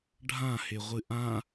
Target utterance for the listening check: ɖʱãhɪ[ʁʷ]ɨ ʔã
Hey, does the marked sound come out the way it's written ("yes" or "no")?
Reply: yes